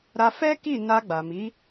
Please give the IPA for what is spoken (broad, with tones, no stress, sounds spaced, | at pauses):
ɾ a˧ f ɛ˦ k i˦˨ n a˧ ɡ͡b a˨ m i˨˦